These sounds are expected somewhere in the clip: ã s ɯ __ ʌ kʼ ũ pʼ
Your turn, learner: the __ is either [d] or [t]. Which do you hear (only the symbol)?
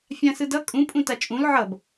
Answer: d